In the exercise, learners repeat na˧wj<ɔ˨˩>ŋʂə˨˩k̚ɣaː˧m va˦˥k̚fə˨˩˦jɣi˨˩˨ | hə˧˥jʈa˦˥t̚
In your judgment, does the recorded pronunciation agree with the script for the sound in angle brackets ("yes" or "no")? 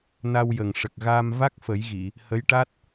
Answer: no